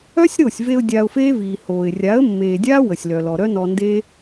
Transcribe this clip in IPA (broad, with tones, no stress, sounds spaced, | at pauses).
œ˦ sʲ ɾ o˦˨ sʲ v e˧ ʊ̯ dʲ a˧ ʊ̯ f eː˦ v iː˨ h oː˨ ɪ̯ rʲ a˨˦ ə̯ mː eː˨ dʲ aː˦ w ə˨ sʲ l œ˨ l ɔ˨ ɾ œ˦ n ɔ˧ n d e˦